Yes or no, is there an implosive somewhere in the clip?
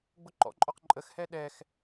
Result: yes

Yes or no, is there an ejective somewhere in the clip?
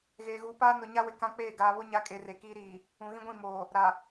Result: yes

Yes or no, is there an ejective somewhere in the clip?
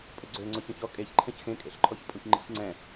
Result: yes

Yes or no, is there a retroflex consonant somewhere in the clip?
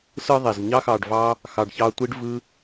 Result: yes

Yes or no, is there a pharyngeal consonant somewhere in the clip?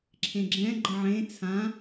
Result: yes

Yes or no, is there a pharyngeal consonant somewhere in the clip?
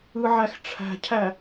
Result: yes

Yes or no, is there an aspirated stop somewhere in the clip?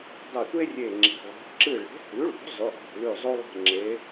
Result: no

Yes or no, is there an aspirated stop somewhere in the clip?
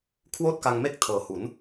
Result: yes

